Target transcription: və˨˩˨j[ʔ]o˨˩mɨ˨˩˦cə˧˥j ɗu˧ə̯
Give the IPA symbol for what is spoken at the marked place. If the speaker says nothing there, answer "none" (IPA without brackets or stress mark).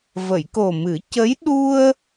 k